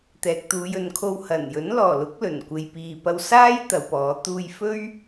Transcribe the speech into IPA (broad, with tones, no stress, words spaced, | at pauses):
t̪ɛː˨k̚t̪uː˨˧jɵ˨nkʰo˧w hɐ˨˩njɵ˨˥n lɔː˨˩lʊ˨˥k̚ lɵ˨˩nkʷe˨jpiː˨pɐ˧w saː˥j t̪ɐ˨˧wpɔː˨˥ t̪uː˧jfɵ˥ɥ